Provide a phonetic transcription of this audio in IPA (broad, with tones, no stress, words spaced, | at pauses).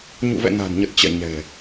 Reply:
ɲṵ˧˨vɛ̰˧˨ na̤˨˩nɲə˨˩t̚ t͡ɕɛ̰˧˨ ɲɛ̤˨˩